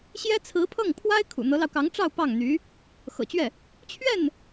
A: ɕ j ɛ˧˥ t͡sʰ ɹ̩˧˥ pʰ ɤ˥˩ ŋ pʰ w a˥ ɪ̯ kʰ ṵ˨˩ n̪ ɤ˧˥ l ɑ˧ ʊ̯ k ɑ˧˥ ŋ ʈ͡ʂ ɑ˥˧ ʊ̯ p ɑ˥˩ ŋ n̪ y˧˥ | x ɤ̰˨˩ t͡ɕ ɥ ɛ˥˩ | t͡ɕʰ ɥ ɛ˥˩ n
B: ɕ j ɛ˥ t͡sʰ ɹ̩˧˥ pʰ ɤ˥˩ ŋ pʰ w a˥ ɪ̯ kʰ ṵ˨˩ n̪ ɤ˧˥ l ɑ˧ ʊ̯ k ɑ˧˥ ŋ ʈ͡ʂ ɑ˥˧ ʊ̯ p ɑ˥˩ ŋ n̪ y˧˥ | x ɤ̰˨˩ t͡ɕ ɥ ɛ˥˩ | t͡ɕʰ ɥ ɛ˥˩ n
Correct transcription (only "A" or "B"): B